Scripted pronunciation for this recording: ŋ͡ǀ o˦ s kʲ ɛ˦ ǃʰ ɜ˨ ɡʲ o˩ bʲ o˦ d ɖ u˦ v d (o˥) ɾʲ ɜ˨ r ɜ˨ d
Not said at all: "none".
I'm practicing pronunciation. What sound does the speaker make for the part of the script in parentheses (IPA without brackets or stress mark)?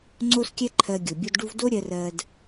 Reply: o˥